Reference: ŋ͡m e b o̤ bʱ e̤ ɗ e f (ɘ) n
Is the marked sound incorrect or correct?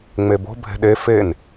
incorrect: e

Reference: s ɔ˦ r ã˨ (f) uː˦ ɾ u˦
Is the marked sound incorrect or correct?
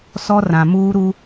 incorrect: m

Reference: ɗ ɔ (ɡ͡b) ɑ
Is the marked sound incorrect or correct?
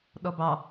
incorrect: b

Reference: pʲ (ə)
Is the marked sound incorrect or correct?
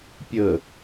correct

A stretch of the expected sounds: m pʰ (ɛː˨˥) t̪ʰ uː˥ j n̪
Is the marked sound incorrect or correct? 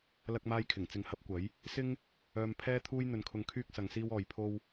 incorrect: ɛː˥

